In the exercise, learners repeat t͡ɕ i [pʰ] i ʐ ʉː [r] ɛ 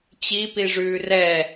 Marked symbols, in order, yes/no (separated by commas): no, yes